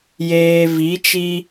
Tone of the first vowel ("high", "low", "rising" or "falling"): low